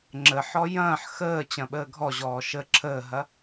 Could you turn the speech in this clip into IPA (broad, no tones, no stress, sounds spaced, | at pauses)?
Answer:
ŋ͡ǁ ə ħ ɔ j ɐ̃ː ħ x əː t͡ɕ ɐ̃ ɓ əː ɡʱ ɔ ʑ ɔː ʃ ə ǁʰ əː ɦ ɐ